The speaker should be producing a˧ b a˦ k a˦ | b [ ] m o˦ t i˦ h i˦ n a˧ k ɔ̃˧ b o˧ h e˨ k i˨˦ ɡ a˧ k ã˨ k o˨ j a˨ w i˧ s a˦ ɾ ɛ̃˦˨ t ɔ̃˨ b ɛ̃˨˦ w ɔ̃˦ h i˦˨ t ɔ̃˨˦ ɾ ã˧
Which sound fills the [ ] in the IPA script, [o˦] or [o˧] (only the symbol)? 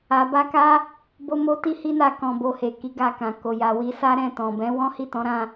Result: o˦